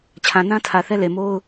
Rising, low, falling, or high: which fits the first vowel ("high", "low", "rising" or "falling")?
low